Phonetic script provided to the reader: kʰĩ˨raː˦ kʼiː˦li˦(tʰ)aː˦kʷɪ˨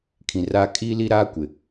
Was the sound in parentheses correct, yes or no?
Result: no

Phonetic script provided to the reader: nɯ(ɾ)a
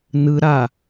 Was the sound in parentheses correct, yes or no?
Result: yes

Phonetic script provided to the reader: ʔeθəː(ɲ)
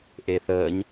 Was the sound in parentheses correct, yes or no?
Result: yes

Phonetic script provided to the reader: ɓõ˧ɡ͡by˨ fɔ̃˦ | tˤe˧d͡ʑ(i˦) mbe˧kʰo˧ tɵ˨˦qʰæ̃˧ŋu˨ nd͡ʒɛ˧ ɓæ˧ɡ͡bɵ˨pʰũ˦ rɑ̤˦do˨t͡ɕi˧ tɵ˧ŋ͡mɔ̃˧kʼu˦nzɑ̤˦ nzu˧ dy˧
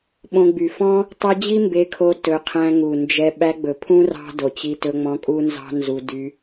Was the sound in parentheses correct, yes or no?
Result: yes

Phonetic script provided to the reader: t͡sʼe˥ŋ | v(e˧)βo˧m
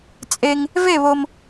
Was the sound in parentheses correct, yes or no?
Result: no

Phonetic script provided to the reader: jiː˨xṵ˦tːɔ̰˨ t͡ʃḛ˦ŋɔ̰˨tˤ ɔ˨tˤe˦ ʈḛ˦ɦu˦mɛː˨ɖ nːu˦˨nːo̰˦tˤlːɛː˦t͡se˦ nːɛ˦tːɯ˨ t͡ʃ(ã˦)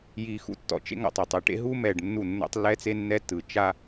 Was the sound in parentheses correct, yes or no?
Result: no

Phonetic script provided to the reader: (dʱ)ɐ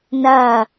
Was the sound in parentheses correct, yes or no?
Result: no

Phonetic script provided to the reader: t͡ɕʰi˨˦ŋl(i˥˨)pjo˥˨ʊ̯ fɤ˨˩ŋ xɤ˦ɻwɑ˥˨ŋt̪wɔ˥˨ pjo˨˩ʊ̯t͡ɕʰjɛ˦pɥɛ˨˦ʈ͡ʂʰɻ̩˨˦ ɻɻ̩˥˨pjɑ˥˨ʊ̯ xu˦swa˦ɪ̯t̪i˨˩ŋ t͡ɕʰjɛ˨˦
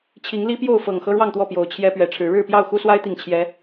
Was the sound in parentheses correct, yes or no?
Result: no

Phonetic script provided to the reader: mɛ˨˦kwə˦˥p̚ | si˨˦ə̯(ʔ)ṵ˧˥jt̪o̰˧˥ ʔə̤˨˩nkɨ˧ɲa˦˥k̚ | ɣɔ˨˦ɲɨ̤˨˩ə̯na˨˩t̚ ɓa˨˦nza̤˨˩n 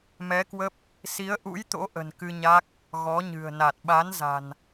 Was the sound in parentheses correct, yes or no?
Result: yes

